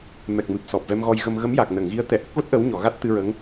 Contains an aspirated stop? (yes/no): no